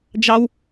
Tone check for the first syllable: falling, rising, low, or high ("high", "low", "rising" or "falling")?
high